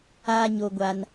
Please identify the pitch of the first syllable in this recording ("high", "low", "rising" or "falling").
high